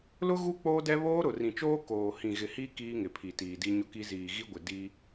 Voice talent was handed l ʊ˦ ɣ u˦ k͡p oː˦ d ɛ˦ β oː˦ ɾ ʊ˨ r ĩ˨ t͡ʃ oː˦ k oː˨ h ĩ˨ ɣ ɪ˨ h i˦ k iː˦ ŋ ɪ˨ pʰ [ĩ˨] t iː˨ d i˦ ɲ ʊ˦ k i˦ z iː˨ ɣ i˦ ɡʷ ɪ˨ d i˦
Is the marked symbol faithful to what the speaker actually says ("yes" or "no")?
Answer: no